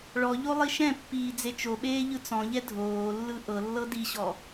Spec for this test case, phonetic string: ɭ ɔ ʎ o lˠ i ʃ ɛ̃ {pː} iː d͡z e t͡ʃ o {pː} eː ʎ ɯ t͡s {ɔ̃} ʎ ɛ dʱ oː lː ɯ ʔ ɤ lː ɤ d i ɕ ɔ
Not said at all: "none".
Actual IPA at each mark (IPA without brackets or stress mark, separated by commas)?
pː, ɓ, ɔ̃